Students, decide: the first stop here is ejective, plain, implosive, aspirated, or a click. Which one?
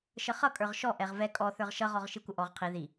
ejective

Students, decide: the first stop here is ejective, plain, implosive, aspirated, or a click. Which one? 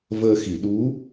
implosive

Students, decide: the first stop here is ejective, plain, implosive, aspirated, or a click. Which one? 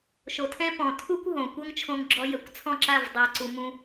aspirated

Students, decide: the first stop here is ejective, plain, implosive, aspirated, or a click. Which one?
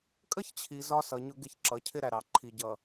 ejective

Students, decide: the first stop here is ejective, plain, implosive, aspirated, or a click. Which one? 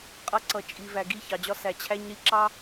ejective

